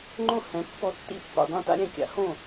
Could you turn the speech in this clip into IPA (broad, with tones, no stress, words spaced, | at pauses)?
ŋ͡ǃõ˥˨hɛ̃˨˥ pːɔ˨˥tːḭ˨˥ pːḭ˨dˤɛ̃˥˨ta̰˥ɾʲɛ̃˨ kʲa̰˨˥hõ˥˨